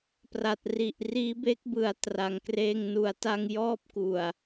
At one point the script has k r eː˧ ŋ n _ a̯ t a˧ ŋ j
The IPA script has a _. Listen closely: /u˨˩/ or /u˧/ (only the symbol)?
u˨˩